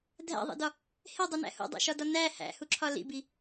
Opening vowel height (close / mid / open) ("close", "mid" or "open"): open